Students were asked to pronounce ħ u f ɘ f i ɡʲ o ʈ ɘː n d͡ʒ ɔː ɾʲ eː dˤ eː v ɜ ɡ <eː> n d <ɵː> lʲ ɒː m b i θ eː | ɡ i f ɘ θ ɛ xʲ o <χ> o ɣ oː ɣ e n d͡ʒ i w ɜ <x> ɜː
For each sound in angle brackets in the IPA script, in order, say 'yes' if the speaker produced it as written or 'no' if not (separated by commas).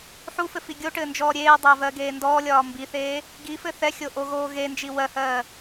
yes, no, no, no